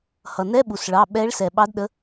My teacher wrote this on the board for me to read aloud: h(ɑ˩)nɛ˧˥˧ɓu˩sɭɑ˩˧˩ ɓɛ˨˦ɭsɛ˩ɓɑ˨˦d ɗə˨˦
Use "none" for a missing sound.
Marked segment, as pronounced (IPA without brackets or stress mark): ʌ˩